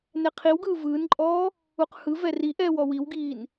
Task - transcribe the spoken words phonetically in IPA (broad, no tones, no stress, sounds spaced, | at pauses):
n ɛ qʰ i w ɡ ɯː v ɯː n ǃʼ ɔː | u q h ɯ v ɛ r i ʔ ɛː w ɔ w i w ɡ iː n